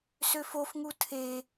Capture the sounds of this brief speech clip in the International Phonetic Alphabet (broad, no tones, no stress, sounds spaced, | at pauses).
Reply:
s ø f o f ŋ u tʰ e